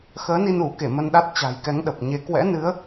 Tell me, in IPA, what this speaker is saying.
x əː˨˦ n i˧ n u˧˩ k e˧˩ m ə˧ n ɗ a˦˥ t̚ t͡ɕ a̤˨˩ j k ɛ˨˦ ŋ ɗ ə˨˩ p̚ ɲ e˨˦ k w ɛ̰˧˥ n ɨ˨˦ ə̯

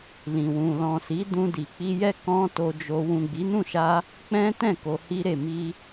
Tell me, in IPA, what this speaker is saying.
l ĩ˨ w ũ˨ l ɔ̃˨ s i˨˦ d ũ˧ d i˨ k͡p i˧ j ɛ˦ k ɔ̃˦ t o˧ d͡ʒ o˧ w ũ˨ ɡ͡b i˨˦ n ũ˦˨ ʃ a˧ | k͡p ɛ̃˦ t ɛ̃˦˨ k o˧ h i˦ ɾ e˦˨ m i˧

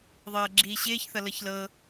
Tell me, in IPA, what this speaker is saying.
ðˤ ɤː ɡ͡ǁ iː ɕ ɪː ç θ ʌ l ɤ ç l ɤ

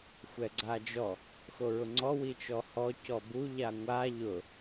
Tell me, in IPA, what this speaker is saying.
xʷ ɛ ɡ͡ǀ a d͡ʒ ɔ | x o ɹ ʊ ŋ͡ǀ ɔ w i t͡ʃ ɔ h ɔ c ɔ b u ʎ a ŋʷ a ʎ ʊ

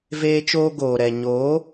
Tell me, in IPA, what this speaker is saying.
v eː˦ t͡ʃ oː˧ ɡ oː˨ ɾ ɛ˨ ɲ oː˨˦

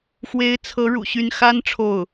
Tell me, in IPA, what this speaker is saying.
x w e˧˥ ɪ̯ t͡sʰ ɤ˧˥ ɻ ṵ˨˩ ɕ y˥˩ n x a˥ n ʈ͡ʂʰ o˥˩ ʊ̯

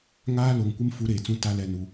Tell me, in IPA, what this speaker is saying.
ŋ aː˦ l o˨ ŋ kʷ ɪ˦ m f u˦ ɾ eː˨ t͡s ũ˦ t a˦ l ɛ˦˨ n u˦

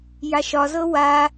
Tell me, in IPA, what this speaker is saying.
j a ʃ ɒ z ɤ w a

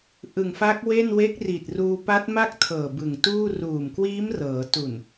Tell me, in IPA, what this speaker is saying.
ʔ ɯ˨˩ ŋ f a˦˥ k̚ w e˥˩ n w e˦˥ k̚ r i˨˩ t̚ r uː˧ p a˦˥ t̚ m a˥˩ k̚ tʰ ɤː˨˩ b ɯ˨˩ ŋ t uː˥˩ r uː˨˩ m k w iː˦˥ m r ɤː˩˦ t u˨˩ n

